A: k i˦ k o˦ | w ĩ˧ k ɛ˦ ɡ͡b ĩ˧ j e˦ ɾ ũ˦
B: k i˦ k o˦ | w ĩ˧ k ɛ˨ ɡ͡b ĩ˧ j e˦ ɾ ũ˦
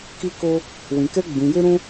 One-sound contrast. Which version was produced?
A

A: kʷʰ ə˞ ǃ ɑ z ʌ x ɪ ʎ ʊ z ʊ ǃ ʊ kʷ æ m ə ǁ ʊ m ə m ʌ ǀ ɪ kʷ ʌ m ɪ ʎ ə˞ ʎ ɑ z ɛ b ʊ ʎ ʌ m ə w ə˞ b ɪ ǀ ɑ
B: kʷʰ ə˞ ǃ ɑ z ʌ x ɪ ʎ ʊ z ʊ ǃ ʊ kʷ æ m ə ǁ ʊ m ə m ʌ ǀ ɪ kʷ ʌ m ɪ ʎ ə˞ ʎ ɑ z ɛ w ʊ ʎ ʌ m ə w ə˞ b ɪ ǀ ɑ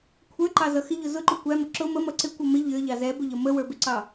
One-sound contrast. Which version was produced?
A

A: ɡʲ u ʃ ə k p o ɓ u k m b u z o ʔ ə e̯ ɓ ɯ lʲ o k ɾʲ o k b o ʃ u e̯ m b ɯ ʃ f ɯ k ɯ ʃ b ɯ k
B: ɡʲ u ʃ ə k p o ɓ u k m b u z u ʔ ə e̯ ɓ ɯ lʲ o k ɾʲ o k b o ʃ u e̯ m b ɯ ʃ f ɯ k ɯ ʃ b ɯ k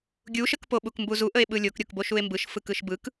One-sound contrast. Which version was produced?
B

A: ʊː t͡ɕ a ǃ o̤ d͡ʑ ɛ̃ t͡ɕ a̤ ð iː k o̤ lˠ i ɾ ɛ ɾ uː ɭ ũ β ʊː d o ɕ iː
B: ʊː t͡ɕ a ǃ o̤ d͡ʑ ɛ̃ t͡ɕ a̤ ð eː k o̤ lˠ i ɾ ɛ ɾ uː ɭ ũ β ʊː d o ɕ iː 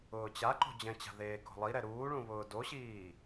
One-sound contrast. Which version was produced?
B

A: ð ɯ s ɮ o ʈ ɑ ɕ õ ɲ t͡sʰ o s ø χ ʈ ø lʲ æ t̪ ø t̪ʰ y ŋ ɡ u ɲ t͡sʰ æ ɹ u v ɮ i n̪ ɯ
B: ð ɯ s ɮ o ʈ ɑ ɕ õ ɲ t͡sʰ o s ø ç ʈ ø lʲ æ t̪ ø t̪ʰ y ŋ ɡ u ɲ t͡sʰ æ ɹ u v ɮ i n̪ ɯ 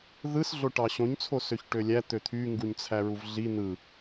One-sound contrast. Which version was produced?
B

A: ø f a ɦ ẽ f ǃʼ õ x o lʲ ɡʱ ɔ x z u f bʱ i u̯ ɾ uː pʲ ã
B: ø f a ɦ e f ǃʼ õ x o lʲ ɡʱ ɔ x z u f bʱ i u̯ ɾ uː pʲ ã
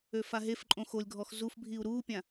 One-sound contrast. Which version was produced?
B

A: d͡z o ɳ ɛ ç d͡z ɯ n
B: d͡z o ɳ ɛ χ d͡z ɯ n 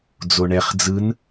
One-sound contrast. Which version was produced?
B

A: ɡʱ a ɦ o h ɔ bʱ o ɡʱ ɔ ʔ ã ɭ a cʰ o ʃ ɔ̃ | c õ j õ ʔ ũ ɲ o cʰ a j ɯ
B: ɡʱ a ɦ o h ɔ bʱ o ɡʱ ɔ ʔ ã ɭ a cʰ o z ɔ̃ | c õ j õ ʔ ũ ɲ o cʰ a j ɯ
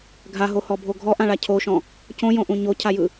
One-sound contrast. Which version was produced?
A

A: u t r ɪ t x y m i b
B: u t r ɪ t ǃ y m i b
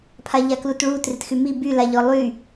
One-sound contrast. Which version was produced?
A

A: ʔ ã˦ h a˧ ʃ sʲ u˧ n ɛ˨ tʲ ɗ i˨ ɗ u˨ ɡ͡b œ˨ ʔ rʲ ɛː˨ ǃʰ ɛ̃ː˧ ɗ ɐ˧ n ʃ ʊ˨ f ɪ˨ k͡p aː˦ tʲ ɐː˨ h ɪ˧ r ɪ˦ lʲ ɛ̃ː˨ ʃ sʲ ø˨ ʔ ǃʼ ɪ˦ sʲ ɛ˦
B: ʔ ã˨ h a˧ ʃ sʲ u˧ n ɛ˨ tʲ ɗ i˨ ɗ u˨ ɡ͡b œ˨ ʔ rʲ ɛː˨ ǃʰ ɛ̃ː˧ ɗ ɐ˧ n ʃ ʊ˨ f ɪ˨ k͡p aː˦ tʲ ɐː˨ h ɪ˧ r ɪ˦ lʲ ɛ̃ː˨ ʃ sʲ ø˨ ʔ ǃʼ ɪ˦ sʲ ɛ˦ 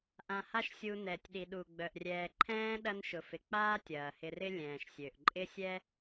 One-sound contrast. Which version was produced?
B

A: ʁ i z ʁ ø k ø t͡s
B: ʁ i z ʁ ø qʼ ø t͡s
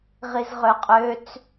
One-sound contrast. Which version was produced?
B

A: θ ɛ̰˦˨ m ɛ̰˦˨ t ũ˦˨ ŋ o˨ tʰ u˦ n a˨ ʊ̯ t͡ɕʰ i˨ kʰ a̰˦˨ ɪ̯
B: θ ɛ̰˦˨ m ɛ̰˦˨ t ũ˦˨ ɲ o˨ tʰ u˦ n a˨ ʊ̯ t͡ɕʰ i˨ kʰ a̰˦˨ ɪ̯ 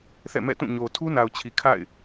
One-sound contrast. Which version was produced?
B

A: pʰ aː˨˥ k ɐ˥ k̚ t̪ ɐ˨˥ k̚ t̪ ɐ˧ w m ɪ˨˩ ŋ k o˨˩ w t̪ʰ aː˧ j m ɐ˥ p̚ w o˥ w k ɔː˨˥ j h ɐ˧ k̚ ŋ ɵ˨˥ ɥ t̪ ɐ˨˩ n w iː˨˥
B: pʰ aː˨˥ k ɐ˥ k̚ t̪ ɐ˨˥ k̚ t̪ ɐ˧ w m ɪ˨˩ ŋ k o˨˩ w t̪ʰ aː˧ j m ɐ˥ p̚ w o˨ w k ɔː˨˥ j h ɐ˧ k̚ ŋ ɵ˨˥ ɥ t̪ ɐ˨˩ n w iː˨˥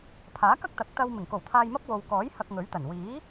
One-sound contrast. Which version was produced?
B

